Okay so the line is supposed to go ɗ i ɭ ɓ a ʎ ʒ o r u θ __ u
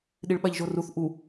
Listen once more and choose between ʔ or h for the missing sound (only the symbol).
ʔ